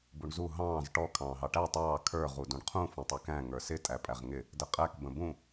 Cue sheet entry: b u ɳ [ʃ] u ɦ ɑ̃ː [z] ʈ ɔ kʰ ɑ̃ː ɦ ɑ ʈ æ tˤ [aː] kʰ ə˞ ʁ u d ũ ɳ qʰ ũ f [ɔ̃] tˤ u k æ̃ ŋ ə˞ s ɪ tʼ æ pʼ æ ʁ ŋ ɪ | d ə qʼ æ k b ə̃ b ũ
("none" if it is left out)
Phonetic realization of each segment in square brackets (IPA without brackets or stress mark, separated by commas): z, z, ɑː, ɔ̃